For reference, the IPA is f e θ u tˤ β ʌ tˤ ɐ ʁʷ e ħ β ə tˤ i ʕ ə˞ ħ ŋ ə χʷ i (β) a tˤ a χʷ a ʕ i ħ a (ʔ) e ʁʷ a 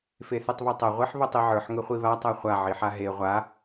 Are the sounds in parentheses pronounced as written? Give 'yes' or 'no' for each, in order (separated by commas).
yes, no